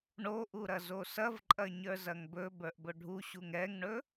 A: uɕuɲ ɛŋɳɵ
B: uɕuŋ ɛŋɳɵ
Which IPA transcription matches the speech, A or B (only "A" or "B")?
B